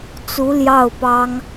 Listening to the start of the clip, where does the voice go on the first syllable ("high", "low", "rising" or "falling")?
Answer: rising